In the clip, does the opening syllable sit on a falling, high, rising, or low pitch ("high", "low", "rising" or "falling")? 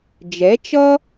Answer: rising